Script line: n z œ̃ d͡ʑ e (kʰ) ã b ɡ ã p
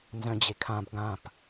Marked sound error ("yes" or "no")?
no